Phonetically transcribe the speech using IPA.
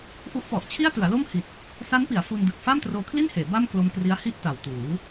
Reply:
ʔu˦˥ʔpɔ˨˩ʔt͡ɕʰi˥˩a̯ tɯ˩˦a̯lo˥˩m hi˨˩t̚ | sa˦˥npi˩˦a̯ fu˧ndɯ˨˩k̚ faː˥˩mtroː˧kʰli˥˩nheː˩˦ ba˥˩m klo˧mkri˦˥a̯hi˥˩ʔ ta˨˩wtuː˩˦

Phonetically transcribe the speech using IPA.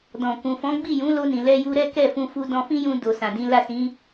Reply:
dɔ̃˨kũ˨ fɔ̃˨˦ɡ͡bi˦˨jũ˨˦ lo˧nĩ˨lɛ˧ ju˧ɾɛ˦kɛ˦˨fũ˧ fu˧dɔ̃˧fĩ˦jũ˧ do˨sã˨dĩ˨˦ la˦˨sĩ˨˦

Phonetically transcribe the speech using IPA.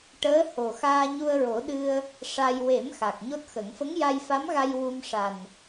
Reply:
ʈəː˧˥ho˨˩ xaː˧ɲu˧ə̯ɹo˨˩˦ ɗɨ˧ə̯ | ʂa˧j we˨˩˦m xa˨˩k̚ɲo˦˥t̚xə˨˩˦ŋ fə˧˥ŋja˧jfa˧˥mɣa˧j wu˧mʂa˨˩n

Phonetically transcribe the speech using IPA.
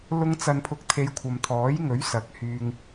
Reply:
lʊ˧ŋt͡sɐ˨npʰʊ˨k̚ t̪ʰe˨˧jkʷʰɐ˨mt̪ʰɔː˨˥jŋɵ˨˥ɥ sɐ˨˥k̚hyː˧ŋ

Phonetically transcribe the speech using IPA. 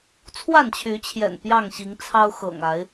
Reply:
t͡sʰwa˥˨nt͡ɕʰy˨˦t͡ɕʰjɛ̰˨˩n pjɑ˥˨ŋɕi˨˦ŋt͡sʰɑ˦ʊ̯xɤ̰˨˩ŋ a˨˦ɪ̯

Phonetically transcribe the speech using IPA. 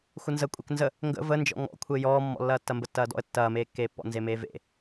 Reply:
xʷənzə kʷʼeknzə | ŋɡə̰ vənd͡ʒɔ̰ ŋɔ̰kʷʰe jɔːmːɔ̰lːɐː tːɐmbətːɐːdɔ̰ə̯ tːɐːmeːkːeːpːɔ̰ nzemeːvḛ

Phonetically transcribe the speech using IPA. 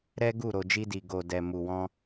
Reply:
ɾɛ˦ɡu˦˨ ɾo˧d͡ʒi˦di˧ ɡo˧ dɛ˧mu˧wɔ̃˦

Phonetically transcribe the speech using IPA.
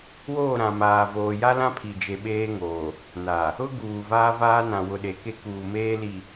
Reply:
woː˦˨ɾã˨maː˨voː˨ ja˦lã˦pʰi˨ d͡ʒe˨ɓeː˦ŋoː˨ | na˨ | ʊ˦ɡuː˨ vaː˦vaː˦nã˨ wʊ˨ɗe˨ke˦kuː˨ meː˦li˨

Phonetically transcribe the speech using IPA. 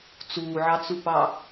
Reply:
t͡suːʕɑt͡supɑ

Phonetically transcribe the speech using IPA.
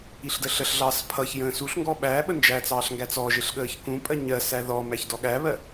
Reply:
iɬdəɬəɬɮɑːs pʰʌç jə̃ːsuɬŋɡɔ ɓæː ɓənd͡ʒæt͡sɑːɬ ŋɡæt͡sɔʒɪɬ ɠəːçkũpʼɜ ɲɜsæ ðɔmæç dɔɠæβɜ

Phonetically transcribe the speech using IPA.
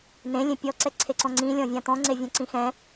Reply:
nẽ lʲẽpʲɔ ǀɛǀʰeǀɔ̃ŋ͡ǀĩ lʲɔ̃vʲãt̪ɔ̃ ŋ͡ǀevʲɛ̃ǀĩxɛ̃

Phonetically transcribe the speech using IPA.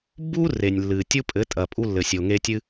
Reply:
bu˦ re˨nʲlːɨ˨ tʲu˦pʼɘ˨˦tʼɐ˨ pʼu˧lːɘ˨sʲo˨ŋe˧ tʲɨ˧

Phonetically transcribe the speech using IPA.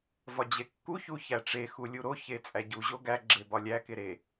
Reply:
vɒd͡ʑekːu çuçæʈ͡ʂe xulʲuɾo çet͡sʼæɟu ʑoɡæ ɡ͡ǁebɒlʲæ keɾe

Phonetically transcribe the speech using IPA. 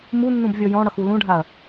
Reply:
munːũb vʲɔjɔ̃ɽʌx ulũɖʱaɐ̯

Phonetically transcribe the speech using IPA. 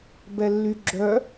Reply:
bɛlːyɡ͡ǁœ

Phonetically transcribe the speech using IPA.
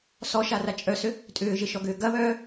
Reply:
sɔʃara t͡ʃʼœsʏ | tʼʏːʒɪʃɔɡʏː ɡɐβœː

